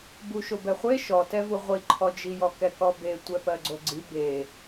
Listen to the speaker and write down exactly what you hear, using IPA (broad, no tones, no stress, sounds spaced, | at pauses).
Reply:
b u ʃ o b ɛ χʷ e ʃ ɔ t ɛ v u ʁʷ i ǃʰ ɔ d͡ʒ i j ɔ k ɛ k ɔ b e tʷ ɛ p ɜ ɡ͡ǀ o ɡ͡ǀ i b e